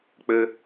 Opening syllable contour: low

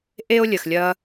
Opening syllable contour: high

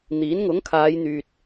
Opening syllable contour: rising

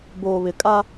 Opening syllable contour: low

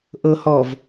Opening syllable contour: low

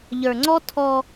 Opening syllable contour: low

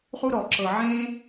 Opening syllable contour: high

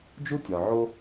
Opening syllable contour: high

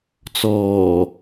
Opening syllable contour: low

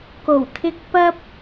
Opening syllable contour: low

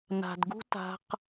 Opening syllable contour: low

